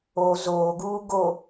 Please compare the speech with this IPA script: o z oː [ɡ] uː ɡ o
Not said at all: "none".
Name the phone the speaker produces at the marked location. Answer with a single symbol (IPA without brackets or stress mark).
ɡ